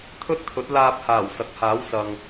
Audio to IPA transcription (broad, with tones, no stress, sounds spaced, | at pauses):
t̪ʰ ɵ˥ t̚ t̪ʰ ɵ˨˥ t̚ l aː˧ p̚ h aː˨˩ w s ɐ˨ k̚ h aː˨˥ w s ɐ˨ ŋ